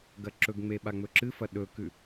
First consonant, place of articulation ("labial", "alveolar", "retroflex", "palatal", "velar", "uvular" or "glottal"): velar